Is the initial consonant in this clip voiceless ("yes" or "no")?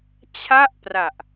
yes